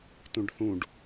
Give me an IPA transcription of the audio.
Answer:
t ũ ɖ θ ũ ɖ

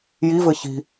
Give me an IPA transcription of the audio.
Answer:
j i v ɘ ç i̤

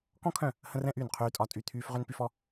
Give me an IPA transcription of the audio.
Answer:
k ɔ̃˦ kʰ œ̃˦˨ | h ə̃˦ r ɛ̃˦ ʔ yː˦˨ n qʰ yː˦ tʼ ɒ˦ tʼ y˦˨ t̪ʰ yː˦ f ʁ ø˦ n p y˦ f ɔ˦

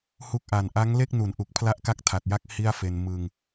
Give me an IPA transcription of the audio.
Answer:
h u˥˩ k̚ ʔ a˨˩ n ʔ a˦˥ ŋ l e˥˩ k̚ n u˩˦ n ʔ u˨˩ k̚ pʰ l a˦˥ ʔ k a˥˩ k̚ tʰ a˨˩ t̚ j a˥˩ k̚ h i˥˩ a̯ f e˧ n m ɯ˧ ŋ

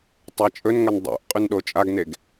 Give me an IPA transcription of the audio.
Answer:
tˤ a t͡ʃʼ ɵ n ŋ ɐ n dˤ o̰ ʔ qʼ ʉ n ɗ o t͡ʃʼ a ɡ n e ɡ

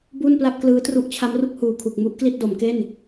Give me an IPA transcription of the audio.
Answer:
b u˥˩ n p l a˥˩ p̚ k l ɯː˦˥ t r u˦˥ ʔ t͡ɕʰ a˦˥ m r u˥˩ k̚ h uː˨˩ kʰ u˨˩ k̚ m u˦˥ ʔ k l i˥˩ t̚ d o˩˦ m k e˥˩ n

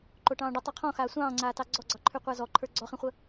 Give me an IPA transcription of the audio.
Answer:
ǃ o ʈ ɑ̃ː ɖ ə tˤ o qʰ ɔ̃ x aː sʷ ɑ̃ː ŋ͡ǀ aː t ɑ ɡ͡ǀ ɔ ɡ͡ǀ ɑ ǃʰ ʉ qʷ a z ɔ ǃʰ ə˞ ɡ͡ǀ ɔ χ ĩ χʷ ə

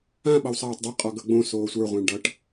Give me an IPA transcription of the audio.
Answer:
ã ɓ ʌ w sˤ aː tˤ dˤ i qʼ ɔ ɡ ʌ ɡ͡b õ s oː sʷ ə˞ ʁʷ ã ɳ ɖ ʌ ʈ

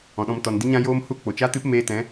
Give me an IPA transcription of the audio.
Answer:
ɔ̃˨ ɗ ɔ̃˧ m t ɔ˨ n d i˦ ɲ ã˦ j oː˦ m h u˦ k͡p o˨ t͡ʃ a˦ t ɨ˦ p m eː˧ t ɛ̃˨˦

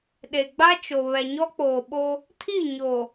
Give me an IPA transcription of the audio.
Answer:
ɗ e˨ ɡ͡b a˦ t͡ʃ o˨ β ɛ˨ ɲ ɔ˦ k͡p oː˨ ɓ o˦ | tʰ i˦˨ ɲ o˨

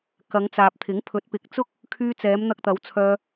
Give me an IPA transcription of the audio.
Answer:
k ɐ˨˧ ŋ t͡s aː˨ p̚ t̪ʰ ɪ˨˥ ŋ pʰ ɵ˨˥ t̚ p ɪ˨˥ k̚ t͡s ʊ˥ k̚ | kʰ yː˧ t͡s ɛː˨˧ m n̪ ɐ˧ k̚ t̪ ɐ˨˧ w t͡sʰ œː˧

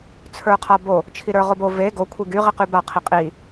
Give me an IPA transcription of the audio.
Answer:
t͡sʰ ə˞ qʰ a b o | t͡ʃʰ i ɾ ə˞ ʁ o b o v e ɡ o kʷʰ i ɡ y ʁ i q y b a qʰ i qʼ i

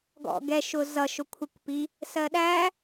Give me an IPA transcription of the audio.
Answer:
ɡ ɔ̰ ɡ ɛ ʃ ʊ z ʌ ʃ ʊ kʷʰ ɪ kʷ p i | s ɜ ɗ æ

